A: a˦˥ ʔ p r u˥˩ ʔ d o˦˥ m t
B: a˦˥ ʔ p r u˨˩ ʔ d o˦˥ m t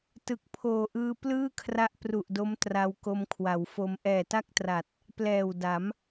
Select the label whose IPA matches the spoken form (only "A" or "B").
B